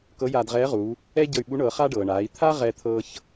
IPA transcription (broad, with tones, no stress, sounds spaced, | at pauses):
k ɤ˧˥ j aː˧ d ʁ ɛː˧˥ ʁ uː˩˧ | ɛ˥ ɟ ɤ˧ y̯ ɓ u˧˥ ɳ ɤː˩˧ χ a˥ ɖ ɤː˩ ɳ aː˩˧ i̯ t̪ʰ a˥ ʁ ɛ˧ t̪ʰ ɤː˧ ç